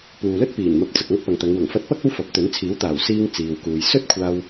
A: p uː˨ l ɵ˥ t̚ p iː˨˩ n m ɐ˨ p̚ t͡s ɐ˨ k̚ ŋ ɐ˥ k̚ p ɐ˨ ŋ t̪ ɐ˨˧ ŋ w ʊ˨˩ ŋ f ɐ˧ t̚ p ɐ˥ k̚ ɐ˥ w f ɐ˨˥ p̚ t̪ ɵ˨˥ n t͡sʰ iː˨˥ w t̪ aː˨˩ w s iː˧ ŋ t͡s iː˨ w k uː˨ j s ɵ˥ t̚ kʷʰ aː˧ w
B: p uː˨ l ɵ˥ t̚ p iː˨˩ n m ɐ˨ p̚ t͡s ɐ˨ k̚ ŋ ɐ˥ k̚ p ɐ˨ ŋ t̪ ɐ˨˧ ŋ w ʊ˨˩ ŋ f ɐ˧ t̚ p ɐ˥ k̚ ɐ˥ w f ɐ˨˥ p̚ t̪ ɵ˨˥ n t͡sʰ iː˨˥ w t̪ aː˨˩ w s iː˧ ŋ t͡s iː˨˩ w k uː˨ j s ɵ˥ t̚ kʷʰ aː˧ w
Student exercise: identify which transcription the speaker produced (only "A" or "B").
A